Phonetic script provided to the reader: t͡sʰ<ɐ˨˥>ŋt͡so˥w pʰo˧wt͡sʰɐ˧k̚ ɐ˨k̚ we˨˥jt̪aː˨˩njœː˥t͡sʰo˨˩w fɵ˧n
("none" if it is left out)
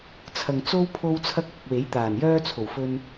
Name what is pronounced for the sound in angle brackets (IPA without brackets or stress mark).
ɐ˨